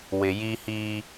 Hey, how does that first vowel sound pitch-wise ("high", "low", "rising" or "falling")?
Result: low